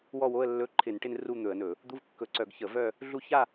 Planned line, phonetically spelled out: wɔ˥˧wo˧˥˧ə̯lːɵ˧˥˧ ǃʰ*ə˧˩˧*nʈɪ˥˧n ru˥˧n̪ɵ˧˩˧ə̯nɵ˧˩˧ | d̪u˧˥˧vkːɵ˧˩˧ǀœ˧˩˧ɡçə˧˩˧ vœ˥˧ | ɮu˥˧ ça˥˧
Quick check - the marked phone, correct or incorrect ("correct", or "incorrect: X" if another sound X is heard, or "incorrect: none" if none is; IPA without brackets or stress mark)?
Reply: incorrect: ɪ˧˩˧